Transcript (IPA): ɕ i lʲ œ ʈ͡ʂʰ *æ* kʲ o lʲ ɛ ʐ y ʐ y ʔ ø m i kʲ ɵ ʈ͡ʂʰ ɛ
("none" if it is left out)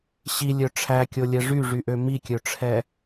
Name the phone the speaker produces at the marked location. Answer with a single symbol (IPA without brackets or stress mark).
æ